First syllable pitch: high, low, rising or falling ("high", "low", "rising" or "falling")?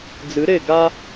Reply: rising